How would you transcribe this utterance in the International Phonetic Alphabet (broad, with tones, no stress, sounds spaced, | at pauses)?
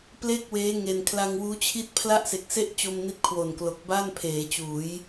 p l e˥˩ k̚ w eː˦˥ ŋ e˧ n kʰ l a˧ ŋ w uː˦˥ t͡ɕʰ i˥˩ t̚ pʰ l a˥˩ ʔ s e˨˩ k̚ s e˥˩ ʔ t͡ɕ o˧ m n i˦˥ t̚ kʰ w o˨˩ n k l o˨˩ k̚ b a˥˩ n pʰ eː˩˦ t͡ɕ uː˩˦ j